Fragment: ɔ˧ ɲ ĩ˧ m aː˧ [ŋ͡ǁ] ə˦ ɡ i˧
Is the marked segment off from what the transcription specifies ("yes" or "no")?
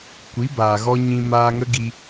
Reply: yes